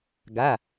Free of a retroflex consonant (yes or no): yes